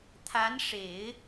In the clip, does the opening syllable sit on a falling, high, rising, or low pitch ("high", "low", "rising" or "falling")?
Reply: rising